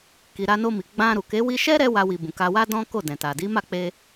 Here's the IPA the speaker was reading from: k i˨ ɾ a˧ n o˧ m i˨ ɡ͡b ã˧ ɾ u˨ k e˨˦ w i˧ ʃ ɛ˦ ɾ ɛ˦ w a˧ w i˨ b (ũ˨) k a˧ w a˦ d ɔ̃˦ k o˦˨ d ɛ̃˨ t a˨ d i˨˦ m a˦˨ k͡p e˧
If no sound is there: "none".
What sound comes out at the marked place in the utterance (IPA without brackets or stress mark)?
ũ˨